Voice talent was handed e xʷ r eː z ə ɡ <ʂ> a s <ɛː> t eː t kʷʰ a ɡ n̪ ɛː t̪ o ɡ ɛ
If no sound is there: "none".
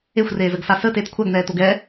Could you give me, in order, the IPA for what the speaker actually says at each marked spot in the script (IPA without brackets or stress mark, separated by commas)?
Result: s, əː